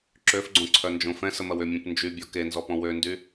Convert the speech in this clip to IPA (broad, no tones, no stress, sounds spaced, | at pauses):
ǁ ø f ɡ͡ǀ õ ǀʰ œ n d͡ʒ õ f ɛ̃ s ə m ɐ w ʏ mʲ ũ p n d͡ʒ y bʲ ɔ k e n z ɔ p ɔ̃ w ø n d y